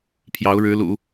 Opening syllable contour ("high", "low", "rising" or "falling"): rising